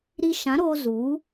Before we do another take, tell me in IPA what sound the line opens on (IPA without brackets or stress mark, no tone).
ɾ